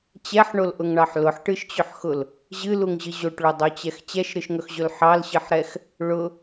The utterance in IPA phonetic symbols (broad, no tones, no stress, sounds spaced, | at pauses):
t͡ɕ ɛ ħ ɳ o l ʔ ʊ ŋ ɳ ɑ ħ l ʊ ħ ʈ ɨ ʃ t͡ɕ ɵ ħ x ʊ l | ʑ ɨ l u ŋ ʑ ɨ ʑ o ʈ ɭ o dˤ o t͡ɕ ɛ x t͡ɕ ɛ ʃ ɾ ɨ ʃ ŋ ɵ x ʑ ɵ l ħ ɑ l ɕ ɨ ħ ɾ ɛ x | ɭ ʊ